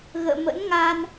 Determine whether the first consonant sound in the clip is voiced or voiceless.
voiced